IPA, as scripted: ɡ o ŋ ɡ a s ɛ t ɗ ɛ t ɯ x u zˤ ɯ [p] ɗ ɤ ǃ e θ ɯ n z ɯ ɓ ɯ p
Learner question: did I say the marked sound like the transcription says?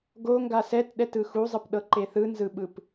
yes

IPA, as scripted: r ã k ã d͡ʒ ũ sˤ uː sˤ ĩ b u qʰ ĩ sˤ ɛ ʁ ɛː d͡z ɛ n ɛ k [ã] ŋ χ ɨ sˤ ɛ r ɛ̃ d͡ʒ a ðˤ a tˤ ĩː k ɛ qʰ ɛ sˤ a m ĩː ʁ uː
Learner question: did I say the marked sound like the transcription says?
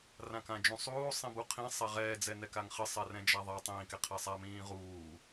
no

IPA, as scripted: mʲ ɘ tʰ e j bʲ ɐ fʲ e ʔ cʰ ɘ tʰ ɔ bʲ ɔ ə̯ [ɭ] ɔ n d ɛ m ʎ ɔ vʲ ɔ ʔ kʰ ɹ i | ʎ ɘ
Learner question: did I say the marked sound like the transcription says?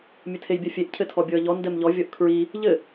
no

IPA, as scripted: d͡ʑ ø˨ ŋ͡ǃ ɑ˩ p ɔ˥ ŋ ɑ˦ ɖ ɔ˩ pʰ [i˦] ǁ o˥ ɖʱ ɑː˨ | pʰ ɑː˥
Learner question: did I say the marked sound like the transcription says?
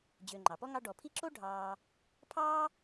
yes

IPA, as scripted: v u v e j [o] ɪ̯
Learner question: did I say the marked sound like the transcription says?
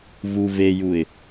no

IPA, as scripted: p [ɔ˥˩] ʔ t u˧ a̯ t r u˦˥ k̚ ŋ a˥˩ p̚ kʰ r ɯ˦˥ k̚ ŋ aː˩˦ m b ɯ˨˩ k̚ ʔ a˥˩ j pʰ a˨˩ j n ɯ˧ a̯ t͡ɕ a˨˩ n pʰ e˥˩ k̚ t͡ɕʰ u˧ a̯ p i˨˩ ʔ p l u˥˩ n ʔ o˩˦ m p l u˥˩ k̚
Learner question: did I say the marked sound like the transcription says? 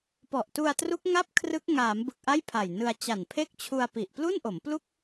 no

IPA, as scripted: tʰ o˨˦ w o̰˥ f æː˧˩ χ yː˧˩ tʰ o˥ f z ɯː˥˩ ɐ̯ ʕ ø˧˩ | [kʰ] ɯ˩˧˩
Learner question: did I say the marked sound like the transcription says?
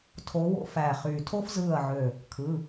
yes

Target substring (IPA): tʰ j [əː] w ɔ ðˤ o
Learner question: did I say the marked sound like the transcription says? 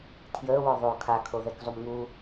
yes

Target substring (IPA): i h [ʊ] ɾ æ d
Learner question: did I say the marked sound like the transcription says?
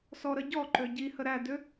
no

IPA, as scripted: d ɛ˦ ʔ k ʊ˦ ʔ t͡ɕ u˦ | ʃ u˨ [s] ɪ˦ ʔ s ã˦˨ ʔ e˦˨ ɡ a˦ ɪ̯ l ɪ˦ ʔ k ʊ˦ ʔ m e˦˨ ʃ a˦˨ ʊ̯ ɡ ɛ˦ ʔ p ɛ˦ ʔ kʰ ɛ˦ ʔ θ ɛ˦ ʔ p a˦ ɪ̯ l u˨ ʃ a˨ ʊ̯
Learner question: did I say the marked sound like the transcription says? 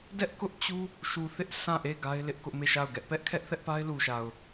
no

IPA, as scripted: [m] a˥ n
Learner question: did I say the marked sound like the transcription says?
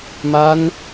yes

